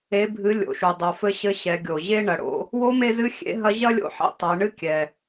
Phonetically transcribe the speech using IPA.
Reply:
e˩˧ bʱ ɨ˩˧ lʲ o̰˩ ʃ u˩ dˤ o˩ f ɘ˧ ɕ ɘ˧ ɕ ɛ˩˧ ɡʲ o˩ ʑ e˥ ɳ ɐ˩˧ ɽ o̰˧˥ | w o˧˥ m e˧ z ɨ˧˥ xʲ ḛ˧˥ ɦ ɐ˧˥ ʑ ɐ˥ lʲ o̰˧˥ ħ ḭ˧˥ tˤ ɛ˩˧ ɳ ɨ˥ kʲ ɛ˩

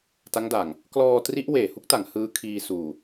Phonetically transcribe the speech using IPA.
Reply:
t a˦˥ ŋ d aː˨˩ ŋ | k l ɔː˧ t r i˦˥ ʔ w eː˨˩ h u˦˥ k̚ t a˨˩ ŋ h ɯː˧ kʰ iː˧ s uː˨˩

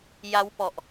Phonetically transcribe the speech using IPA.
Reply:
j a˦˥ w p ɔ˨˩ ʔ

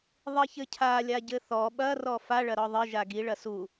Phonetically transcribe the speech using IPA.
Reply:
ðˤ i ç ɘ cʰ a lʲ a ɟ ɘ θ ɔ ɓ ɐ r ɔ f a ɭ ɐ ɾ ɔ ðˤ ɘ ʒ a ɡ i ɭ ɐ s u

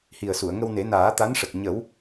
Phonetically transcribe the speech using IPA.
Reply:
h i˨˩ ə̯ s u˨˩˨ ə̯ ŋ ə˧ w n e˨˩˦ n aː˨˩˦ t̪ a˧˥ n ʂ ə˨˩ k̚ ɲ ə˨˩˦ w

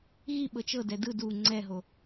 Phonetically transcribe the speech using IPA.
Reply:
ɣ i ɓ ɤ t͡ʃ ɤ d ɛ d ɯ d u ŋ͡ǀ ɛ ɦ o

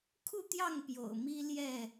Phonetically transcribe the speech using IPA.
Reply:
kʰ u˥˨ t̪ j ɑ˥˨ ŋ p j o̰˨˩ ʊ̯ m i˦ l j ɛ˥˨

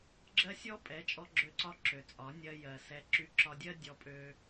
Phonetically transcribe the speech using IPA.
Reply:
ɡ͡ǁ ɜ˦ sʲ ɔ˦ pʼ ɛ˨˦ t͡ʃʼ ɔ˧ ɡ͡ǁ ø˧ ǀ ɒ˧ ǁ ø˨ t͡sʼ ɒ˨˦ nʲ ɜ˧ j ɜ˨ s ɛ˨˦ ǁ y˧ ǁ ɒ˧ dʲ ɜ˦ dʲ ɔ˧ pʼ ø˧

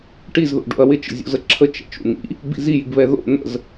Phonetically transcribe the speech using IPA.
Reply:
ʈ i z ð o̰ ɖ o̰ ɐ̯ w ɪ t͡ʃ ə̰ zʲ o̰ z ə ǁʰ ə t͡ʃ ɛ̰ t͡ʃ ṵ n̪ ḭ | b ḭ z i j i ɡ β ɛ ð o̰ n̪ ə̰ z

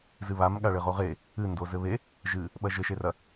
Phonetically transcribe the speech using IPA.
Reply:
z ɨ β a m ɠ a ɭ ɘ ʁ o ʁ e | ɨ n d o z ɘ β e | ʒ ɨ | ɓ ɐ ʒ ɘ ʃ e r ɐ

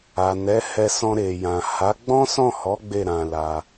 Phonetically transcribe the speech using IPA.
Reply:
a˨ n ɛ˨˦ h ɛ˧ s ɔ̃˧ ɾ e˨ j ã˨ h a˨˦ ɡ͡b ɔ̃˦ s ɔ̃˦˨ h ɔ˨˦ ɡ͡b e˦˨ ɾ ã˧ l a˧

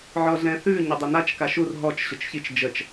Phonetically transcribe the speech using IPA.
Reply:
ʕ ɔ ɮ ɛ̃ θ ʉ ɲ ə dˤ ə n a t͡ʃ k a ʃ u r ɦ ɔ t͡ʃ ɕ ʊ t͡ʃ ç i t͡ʃ d͡ʒ ə t͡ʃ

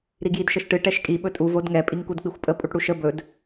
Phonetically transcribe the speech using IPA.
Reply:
ɾ i ɡ j i d ʃ ə ʃ ʈ ɨ ʈ ɛ ʃ kʼ i ɓ ɵ tʼ u v o d ŋ ɛ pʼ i ŋ k u d k͡p i xʷ pʼ ə pʼ u ʈ ɽ u ʃ ə b ɵ d

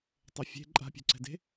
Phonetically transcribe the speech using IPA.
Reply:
tˤ ɛ fʲ e̤ ǃʼ a̤ pʲ o̤ ǀ ɛ̤ d e̤

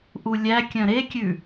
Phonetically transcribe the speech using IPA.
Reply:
ʔ u lʲ æ kʲ œ̃ ɾ e kʲ ʉ

